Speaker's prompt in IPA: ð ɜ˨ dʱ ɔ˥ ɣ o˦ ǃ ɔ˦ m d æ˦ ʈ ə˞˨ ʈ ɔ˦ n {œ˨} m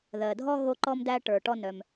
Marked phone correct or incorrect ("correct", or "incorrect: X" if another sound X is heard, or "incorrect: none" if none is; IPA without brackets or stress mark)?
correct